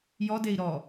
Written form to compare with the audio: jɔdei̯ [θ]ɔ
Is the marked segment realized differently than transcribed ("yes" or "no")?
yes